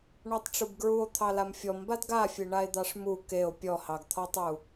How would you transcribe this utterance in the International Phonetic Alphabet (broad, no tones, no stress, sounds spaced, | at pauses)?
ɳ ɔ tˤ ʈ͡ʂ u b ɡ ɹ u o̯ t̪ʰ ɑ l a m fʲ ɔ m b a d ɡ a fʲ e ɳ a e̯ d̪ ɑ ʂ m u k e o̯ pʲ ɔ h ɑ ɡ t̪ʰ ɔ tˤ u